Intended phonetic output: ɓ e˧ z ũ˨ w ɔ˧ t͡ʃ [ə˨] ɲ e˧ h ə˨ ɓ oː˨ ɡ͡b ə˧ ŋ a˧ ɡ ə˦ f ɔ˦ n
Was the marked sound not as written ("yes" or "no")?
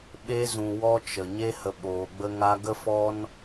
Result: no